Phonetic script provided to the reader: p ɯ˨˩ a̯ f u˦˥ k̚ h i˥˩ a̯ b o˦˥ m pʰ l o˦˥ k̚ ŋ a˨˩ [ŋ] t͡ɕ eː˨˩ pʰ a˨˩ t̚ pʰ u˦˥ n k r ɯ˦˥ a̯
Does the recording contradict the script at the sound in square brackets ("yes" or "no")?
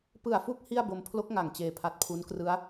no